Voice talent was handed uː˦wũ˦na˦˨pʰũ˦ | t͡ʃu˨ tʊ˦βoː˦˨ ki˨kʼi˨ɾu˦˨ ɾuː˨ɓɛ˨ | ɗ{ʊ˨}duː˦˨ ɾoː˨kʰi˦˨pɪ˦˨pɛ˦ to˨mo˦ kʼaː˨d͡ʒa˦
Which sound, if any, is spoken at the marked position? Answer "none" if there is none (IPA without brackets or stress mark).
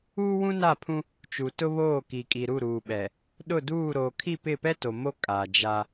ʊ˦˨